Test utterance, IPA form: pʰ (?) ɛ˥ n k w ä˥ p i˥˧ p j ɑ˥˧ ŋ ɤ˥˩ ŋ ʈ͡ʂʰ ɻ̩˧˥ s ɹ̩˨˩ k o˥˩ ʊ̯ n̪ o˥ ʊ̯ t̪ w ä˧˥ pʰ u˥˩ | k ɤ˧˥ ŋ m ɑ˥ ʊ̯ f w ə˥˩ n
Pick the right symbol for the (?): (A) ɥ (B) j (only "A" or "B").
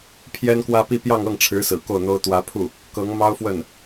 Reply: B